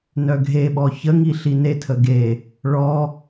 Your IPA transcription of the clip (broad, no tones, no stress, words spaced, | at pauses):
nœɡʱeɓɔ çəŋi ɬinetʰə ɡe | ɭɔ